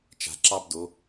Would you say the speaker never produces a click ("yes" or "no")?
no